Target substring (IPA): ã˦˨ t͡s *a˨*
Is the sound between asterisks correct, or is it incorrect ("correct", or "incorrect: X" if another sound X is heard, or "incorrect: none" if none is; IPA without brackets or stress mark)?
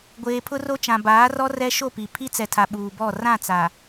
correct